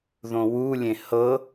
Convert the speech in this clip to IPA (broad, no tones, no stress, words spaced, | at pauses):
ðõwulʲẽ hɤ